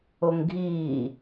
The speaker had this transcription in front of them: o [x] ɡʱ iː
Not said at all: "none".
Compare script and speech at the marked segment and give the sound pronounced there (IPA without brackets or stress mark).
ŋ